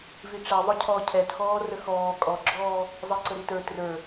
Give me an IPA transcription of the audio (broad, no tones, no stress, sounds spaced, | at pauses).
v i ʈ͡ʂ ɛ ðˤ ʊ cʰ ɔ cʰ ɛ t x ɔː r ə x ɔː kʼ ɔ ɡ͡ǁ ɔː | zˤ i ǀ ə ɾ i t ə˞ t r ə˞